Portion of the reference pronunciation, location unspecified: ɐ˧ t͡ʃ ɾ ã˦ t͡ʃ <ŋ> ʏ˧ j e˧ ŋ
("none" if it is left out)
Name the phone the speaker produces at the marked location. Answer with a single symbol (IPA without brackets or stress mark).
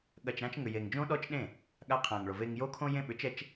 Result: ŋ